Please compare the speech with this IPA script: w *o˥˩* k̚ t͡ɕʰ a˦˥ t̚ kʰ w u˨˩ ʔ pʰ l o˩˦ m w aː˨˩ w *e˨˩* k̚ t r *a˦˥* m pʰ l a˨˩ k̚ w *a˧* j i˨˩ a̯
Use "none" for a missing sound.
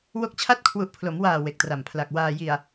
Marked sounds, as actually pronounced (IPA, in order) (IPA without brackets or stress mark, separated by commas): o˥˩, e˨˩, a˨˩, aː˧